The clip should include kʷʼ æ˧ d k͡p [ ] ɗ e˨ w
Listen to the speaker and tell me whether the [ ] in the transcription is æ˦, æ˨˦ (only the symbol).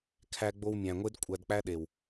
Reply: æ˦